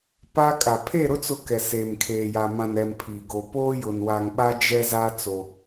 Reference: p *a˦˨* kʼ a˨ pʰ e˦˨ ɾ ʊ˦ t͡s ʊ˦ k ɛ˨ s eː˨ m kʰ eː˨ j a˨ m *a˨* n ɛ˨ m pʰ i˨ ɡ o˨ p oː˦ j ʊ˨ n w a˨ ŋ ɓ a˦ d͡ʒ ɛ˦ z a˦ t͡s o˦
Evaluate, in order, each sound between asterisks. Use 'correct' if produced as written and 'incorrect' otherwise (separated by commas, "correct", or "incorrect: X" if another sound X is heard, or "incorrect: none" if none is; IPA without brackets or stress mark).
incorrect: a˦, incorrect: ã˨